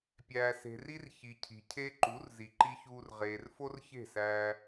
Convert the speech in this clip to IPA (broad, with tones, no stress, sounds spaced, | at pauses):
pʲ æː˨ s e̤˨ r i˦ r ç i˨ cʰ i̤˨ cʰ e˦ ǃ u˨˦ r z i˨ ǃ i˧ ç uː˧ r ʁ eː˨ r f o˦ r ç e̤˦˨ s æ˧